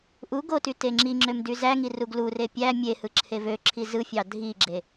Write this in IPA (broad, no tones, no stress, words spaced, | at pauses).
ʔu ɡoty teŋ͡ǁiŋ͡ǁøm dyzæŋi ruɡlure pʲæ mʲe hɯǁʰevøǁʰi zɯfʲɑ dʱiɡ͡ǁe